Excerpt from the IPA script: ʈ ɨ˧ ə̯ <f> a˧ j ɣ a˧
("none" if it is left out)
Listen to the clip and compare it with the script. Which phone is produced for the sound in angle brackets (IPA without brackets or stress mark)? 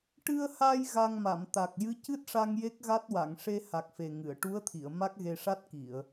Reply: h